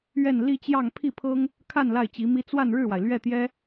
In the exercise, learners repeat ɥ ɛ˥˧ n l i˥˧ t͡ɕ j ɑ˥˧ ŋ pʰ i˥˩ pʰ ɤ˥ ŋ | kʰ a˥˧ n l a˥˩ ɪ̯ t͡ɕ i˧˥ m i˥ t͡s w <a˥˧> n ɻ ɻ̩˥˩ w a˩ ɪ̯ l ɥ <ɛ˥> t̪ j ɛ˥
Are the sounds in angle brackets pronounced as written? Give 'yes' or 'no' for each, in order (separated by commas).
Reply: yes, no